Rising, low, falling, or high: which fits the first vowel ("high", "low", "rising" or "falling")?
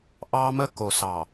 high